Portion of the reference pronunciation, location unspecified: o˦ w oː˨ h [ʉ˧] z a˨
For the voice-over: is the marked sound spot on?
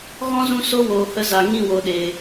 no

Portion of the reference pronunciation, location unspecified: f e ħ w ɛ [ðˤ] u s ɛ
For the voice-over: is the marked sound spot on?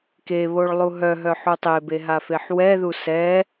no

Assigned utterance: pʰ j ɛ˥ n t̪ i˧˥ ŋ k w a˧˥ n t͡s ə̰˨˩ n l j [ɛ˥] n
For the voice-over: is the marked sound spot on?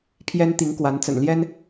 yes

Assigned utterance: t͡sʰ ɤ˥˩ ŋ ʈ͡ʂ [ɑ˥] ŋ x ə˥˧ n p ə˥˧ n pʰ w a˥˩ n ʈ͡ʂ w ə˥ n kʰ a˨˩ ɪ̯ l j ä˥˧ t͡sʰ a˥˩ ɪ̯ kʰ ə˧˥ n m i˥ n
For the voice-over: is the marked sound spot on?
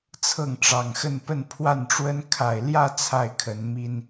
no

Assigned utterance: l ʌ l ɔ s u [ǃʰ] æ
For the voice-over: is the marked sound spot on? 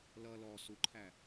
yes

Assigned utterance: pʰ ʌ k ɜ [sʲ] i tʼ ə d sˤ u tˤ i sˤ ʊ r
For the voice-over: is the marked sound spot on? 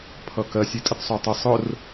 yes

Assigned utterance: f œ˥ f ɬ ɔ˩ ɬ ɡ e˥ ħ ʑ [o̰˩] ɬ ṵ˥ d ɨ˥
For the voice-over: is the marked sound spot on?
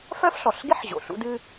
yes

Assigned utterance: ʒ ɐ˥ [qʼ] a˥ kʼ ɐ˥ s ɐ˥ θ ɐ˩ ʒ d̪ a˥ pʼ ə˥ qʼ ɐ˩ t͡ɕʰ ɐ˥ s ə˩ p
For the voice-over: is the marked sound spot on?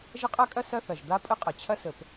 yes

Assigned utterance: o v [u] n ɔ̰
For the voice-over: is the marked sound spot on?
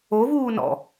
no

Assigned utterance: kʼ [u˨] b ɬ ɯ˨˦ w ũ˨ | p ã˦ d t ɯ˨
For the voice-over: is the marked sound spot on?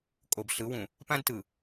no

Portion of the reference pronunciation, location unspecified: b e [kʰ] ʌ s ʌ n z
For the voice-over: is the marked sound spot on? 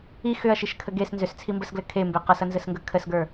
no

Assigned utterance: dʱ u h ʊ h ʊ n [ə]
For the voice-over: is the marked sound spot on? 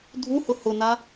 no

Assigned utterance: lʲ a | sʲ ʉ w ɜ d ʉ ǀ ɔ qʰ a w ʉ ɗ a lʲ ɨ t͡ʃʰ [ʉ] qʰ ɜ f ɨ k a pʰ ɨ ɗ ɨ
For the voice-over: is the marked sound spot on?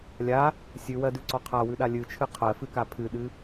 no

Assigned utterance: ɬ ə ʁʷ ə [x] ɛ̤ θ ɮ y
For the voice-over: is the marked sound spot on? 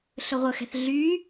yes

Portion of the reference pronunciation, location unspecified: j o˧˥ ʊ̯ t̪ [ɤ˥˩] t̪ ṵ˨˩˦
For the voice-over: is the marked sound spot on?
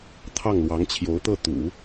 yes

